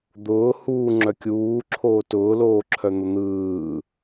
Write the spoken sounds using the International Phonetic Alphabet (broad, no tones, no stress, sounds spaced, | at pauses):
d̪ ʊː h uː ŋ͡ǁ œ kʲ uː ǁʰ oː t ʊː l oː ǁʰ œ n̪ ʊ n̪ ɯː